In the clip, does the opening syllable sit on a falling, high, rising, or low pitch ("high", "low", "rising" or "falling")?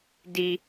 low